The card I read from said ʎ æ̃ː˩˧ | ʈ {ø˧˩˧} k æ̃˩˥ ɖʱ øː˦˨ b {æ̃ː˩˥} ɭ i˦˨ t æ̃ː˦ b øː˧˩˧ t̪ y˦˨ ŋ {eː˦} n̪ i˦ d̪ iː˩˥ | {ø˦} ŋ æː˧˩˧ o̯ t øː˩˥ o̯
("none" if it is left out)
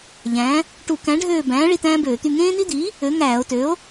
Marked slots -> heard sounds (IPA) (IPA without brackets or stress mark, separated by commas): u˧˩˧, æ̃ː˩˥, ẽː˦, ø˩˥